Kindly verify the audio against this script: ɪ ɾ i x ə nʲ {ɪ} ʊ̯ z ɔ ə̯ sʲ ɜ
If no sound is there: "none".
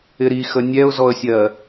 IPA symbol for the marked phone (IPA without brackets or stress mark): ɛ